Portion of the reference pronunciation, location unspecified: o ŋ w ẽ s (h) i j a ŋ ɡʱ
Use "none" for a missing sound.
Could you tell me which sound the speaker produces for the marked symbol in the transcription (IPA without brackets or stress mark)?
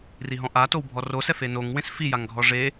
f